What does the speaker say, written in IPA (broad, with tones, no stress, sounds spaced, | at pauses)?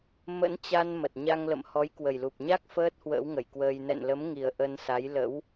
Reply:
m ə̰˧˥ n t͡ɕ a˧ n m ə˨˩ t̚ ɲ a˧ ŋ l ə̰˧˨ m h ɔ˨˦ j k w ə˨˩ j l u˨˩ p̚ ɲ a˦˥ k̚ f əː˦˥ t̚ h w ə̰ː˧˥ w ŋ ə˧˩ j k w əː˧ j n ɛ̰˧˨ n l ə˨˦ m ŋ i˨˩ ə̯ ʔ ə˧ n s a˨˦ j l ə̰˧˥ w